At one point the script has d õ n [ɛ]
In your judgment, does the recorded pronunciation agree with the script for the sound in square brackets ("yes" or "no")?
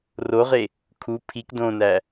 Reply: no